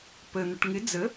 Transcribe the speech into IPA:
pə n̪əʈŋɪ d͡zə

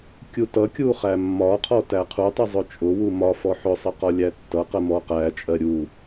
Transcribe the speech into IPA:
kʲutʌkʲu χæmːɒqʰɔ tæqʰutˤʌ zˤʊt͡ʃʼʊwu mɒfɔ ħʊsˤʌ qɒlʲætːʌqɜ mɔqæt͡ʃʼɜ ɾʲu

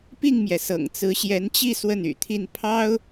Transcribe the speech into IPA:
pi˥˩ŋmjɛ˩sɤ̰˨˩ŋ t͡sɹ̩˧˥ɕjɛ˧˥nt͡ɕi˥˧ swə˥˩ny̰˨˩t̪ʰi˥˩n pʰɑ˥ʊ̯

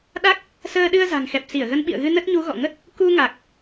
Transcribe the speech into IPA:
ɗa˦˥k̚ | səː˧ɗɨ˧ə̯za̤˨˩ŋ xɛ˨˩p̚si˧˩ə̯ɣə˨˦n ɓḭ˧˨ə̯ɣɨ˧ nə˦˥t̚ɲu˨˦ ɣɔ̰˧˨ŋə˦˥t̚ | ku˧ŋa˨˩k̚

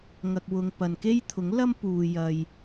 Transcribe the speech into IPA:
ŋɐ˨k̚wʊ˨ŋ pɐ˨n ke˥jt̪ʰʊ˨˥ŋlɐ˥m puː˨jɐ˨j

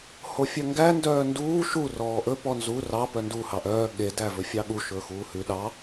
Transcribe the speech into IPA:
hofʲœŋɡæ ndœːnduː ʃu rɔːʔɵ pɔnzu rɑ pœndu hɑʔœː ɠe dævɵfʲɑɠu ʃɵːxuːhʉ ɗɑ

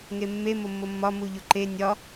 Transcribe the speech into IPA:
ŋemːe momːomːɒ muʎoǃe nʲɒ

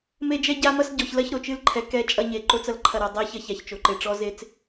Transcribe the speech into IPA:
me˦d͡ʒɛ˦ɟa˦mɐ˦s ɟɔ˨çlɐ˦ç ɾo˨t͡ʃɨ˦lǃʰɛ˨ kɛ˦t͡ʃʼɐ˦ɲe˨ ǃo˦t͡sɐ˨lǃʰɐ˦˨ ɾɐ˨dˤa˦ çɐ˦ça˨çt͡ʃo˨ǃe˨ ʈ͡ʂɔ˦ze˦t͡s

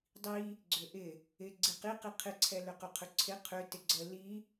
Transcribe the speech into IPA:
dˤi | ɡ͡ǀʏʔɪ | ɪ ɡ͡ǀiqiqi qʰɪǀʰɛ lʏqʏqʰʏǀʰɪ qʰʏ tɪɡ͡ǀə li

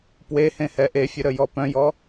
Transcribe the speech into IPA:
pwehẽ hɛʔefʲə ɾəjɔpœ̃jɔ

